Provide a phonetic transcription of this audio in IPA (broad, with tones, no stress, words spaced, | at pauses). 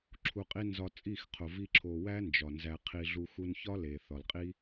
ǁʰu˧qʼi˦ nzɒ˧t͡sʼi˦˨xqʰo˨ vi˦ǁʰo˧ wæ˦nd͡ʒɒ˨ nzæ˧qʰi˧ ɮu˧xu˧nçɒ˦ le˨θɒ˨l qʼi˦